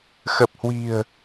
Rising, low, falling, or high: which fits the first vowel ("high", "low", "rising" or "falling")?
low